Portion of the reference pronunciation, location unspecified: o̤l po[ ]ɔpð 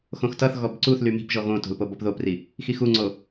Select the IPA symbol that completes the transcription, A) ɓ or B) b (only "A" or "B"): B